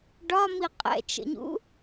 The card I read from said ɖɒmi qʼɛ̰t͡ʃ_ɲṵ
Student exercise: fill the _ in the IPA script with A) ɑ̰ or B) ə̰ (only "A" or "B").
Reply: B